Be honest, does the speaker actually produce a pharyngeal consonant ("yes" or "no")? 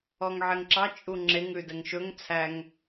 yes